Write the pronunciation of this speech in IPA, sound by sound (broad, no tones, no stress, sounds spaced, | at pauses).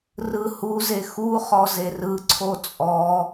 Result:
r ɯ h u z e x u χ ɔ z e r ɯ ǀʰ o t͡sʼ ɔ